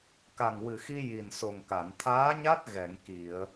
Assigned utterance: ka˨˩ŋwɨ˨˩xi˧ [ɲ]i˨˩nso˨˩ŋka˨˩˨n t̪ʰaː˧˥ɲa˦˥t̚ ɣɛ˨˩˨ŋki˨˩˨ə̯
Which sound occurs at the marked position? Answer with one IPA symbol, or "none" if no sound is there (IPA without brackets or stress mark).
j